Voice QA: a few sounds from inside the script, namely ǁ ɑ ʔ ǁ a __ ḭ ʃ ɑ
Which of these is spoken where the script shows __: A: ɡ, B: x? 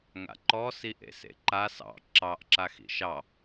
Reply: B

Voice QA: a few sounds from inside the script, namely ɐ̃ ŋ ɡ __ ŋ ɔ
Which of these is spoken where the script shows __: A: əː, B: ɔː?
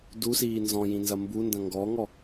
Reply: B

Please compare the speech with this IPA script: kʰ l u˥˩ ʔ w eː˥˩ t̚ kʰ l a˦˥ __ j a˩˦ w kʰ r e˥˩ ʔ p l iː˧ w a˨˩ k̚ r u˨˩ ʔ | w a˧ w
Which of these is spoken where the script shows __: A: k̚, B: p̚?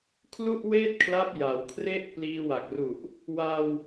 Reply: B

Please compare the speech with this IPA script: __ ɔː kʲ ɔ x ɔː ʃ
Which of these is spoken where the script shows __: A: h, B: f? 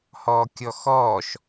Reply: A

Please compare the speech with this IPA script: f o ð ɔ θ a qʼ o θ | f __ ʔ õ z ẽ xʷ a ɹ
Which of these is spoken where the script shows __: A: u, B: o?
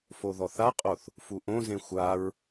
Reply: A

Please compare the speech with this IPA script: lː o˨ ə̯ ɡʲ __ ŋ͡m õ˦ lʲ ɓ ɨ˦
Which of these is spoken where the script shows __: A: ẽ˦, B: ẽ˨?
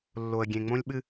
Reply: B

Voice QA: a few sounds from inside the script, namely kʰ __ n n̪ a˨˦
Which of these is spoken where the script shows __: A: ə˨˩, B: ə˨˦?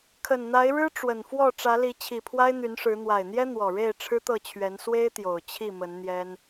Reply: A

